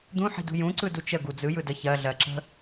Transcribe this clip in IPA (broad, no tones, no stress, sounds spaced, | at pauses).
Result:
d̪ ũ ħ i̤ d ṳ j ũ ǀ ɯ d u t͡ʃ ə ɡ u d͡z ɯ j ɯ d ə ç ɜ ɮ ɜ ǁ ə̤